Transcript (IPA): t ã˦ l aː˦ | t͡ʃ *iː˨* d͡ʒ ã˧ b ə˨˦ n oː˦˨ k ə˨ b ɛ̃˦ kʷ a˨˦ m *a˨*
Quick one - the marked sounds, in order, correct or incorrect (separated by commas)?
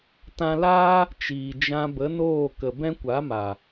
correct, correct